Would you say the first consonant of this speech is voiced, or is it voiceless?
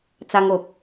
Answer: voiceless